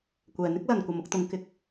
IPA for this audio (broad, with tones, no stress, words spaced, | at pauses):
kʷɛː˨n̪ɪ˥k̚ lɐ˨nkʷɐ˨mʊ˧k̚t̪ʊ˨˧ŋ kɪ˨k̚